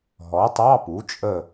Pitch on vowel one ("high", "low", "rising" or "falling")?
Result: rising